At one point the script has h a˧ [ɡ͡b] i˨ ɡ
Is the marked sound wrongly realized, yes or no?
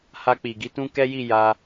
yes